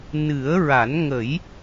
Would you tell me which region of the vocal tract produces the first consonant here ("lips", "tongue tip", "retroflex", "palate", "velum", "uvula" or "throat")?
tongue tip